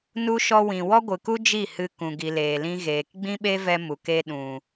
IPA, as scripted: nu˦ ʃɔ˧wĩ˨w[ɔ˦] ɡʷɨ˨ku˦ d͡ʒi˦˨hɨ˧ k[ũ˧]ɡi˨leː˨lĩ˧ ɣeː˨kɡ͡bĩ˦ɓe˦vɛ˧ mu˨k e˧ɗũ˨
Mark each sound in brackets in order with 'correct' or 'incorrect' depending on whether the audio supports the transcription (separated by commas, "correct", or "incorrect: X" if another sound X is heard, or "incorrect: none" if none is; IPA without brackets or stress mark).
correct, incorrect: ũ˨